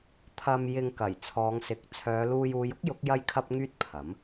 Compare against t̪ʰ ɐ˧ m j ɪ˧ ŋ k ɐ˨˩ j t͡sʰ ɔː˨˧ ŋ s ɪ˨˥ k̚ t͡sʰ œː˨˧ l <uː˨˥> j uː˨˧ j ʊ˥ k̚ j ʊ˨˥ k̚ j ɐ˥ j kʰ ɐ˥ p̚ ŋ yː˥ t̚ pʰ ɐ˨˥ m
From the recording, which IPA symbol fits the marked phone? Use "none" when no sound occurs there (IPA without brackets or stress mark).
uː˧